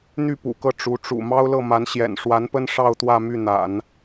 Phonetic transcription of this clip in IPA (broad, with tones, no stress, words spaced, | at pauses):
n̪y˥˩pṵ˨˩kɤ˥˩ ʈ͡ʂu˧˥ʈ͡ʂṵ˨˩ mɑ˥ʊ̯lɤ˥˩ma˧˥n ɕjɛ̰˨˩nʂwa˧˥npə˥n ʂɑ˥˧ʊ̯t̪wä˥˧ my˥˩n̪a̰˨˩˦n